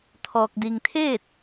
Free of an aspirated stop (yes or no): no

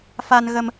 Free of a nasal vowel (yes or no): yes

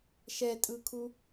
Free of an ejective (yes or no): no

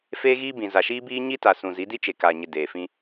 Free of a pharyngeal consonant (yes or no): yes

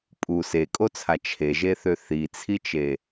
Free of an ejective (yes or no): no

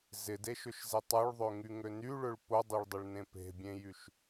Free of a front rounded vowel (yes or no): no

